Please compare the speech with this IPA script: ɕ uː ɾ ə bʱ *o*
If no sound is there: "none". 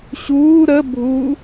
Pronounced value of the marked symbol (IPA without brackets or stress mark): u